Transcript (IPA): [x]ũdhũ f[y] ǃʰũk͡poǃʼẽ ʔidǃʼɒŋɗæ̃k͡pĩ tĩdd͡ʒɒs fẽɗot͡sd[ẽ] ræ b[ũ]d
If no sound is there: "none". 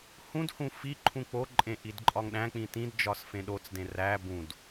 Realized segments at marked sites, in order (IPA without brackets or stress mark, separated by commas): h, i, ẽ, ũ